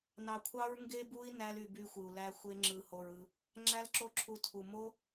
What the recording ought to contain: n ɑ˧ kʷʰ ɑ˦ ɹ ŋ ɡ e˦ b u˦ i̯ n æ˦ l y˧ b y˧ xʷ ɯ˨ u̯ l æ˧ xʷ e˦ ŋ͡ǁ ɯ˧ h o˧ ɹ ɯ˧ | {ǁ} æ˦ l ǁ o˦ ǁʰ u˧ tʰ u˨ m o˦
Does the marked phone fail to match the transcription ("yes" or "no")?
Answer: yes